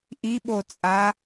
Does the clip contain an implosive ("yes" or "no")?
yes